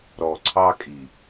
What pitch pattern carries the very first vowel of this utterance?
low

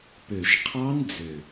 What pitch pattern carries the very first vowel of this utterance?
low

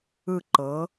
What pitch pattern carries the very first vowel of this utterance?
falling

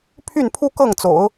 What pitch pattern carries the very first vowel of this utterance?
falling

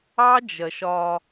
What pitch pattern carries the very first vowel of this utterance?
high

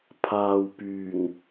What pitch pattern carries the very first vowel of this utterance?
low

